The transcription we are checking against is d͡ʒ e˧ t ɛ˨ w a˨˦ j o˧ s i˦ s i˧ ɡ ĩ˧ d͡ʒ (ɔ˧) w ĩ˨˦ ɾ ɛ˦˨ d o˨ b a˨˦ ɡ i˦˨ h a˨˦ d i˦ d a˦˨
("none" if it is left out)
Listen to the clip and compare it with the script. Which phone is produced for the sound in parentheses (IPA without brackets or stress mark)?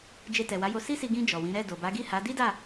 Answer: ɔ˨